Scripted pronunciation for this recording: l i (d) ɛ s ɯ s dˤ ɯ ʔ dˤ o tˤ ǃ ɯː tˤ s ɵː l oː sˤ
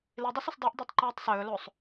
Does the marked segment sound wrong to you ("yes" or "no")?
yes